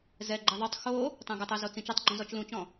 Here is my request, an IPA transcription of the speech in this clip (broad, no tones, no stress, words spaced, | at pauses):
zɛɡ͡ǃɛ ðˤœtˤ xo | tˤɛ̃ɡɘtˤœzo t͡sĩt͡ʃotˤɡ͡ǃũ zɔt͡ʃlũt͡ʃɔ̃